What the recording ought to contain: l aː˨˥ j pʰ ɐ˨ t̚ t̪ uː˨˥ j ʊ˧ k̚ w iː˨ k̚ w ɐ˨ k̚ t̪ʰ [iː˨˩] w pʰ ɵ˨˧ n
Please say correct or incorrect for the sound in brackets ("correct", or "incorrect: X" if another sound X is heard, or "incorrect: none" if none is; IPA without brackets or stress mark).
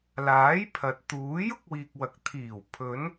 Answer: correct